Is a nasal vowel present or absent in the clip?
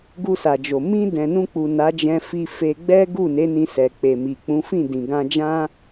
present